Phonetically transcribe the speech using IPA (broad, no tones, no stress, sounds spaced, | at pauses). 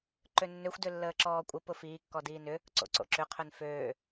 ǃ ø nː ø xʷ d ʏ lː əː ǁ ɔː kʷʼ ə p ʊ f iː kː ɔ d iː n ʏ | ǀ o̰ ǀ o̰ ǁ ʏ qʰ ø n f øː